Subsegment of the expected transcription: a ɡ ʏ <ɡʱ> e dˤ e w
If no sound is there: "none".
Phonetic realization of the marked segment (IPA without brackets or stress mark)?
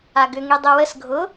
ŋ